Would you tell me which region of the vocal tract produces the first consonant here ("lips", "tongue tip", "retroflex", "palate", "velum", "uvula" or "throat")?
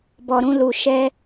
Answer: lips